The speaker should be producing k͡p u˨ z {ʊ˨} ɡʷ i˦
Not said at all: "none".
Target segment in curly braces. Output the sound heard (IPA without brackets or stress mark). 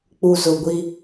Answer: ʊ˨